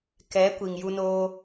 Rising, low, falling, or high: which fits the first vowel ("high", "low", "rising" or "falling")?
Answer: rising